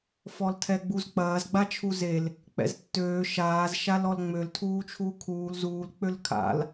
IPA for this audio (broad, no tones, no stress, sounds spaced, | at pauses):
f ɔ l tʰ ɛ ɡ͡b u z k͡p ɐː z ɡ͡b a t͡ʃʰ u z e l | k͡p ɛ̰ z tː øː ʃ aː z ʃ a l ɔ l ŋ͡m ø l tʰ uː t͡ʃʰ uː kʰ uː l z uː l k͡p ø l kʰ a̰ l